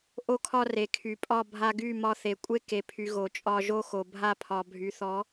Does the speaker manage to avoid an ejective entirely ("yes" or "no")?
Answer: no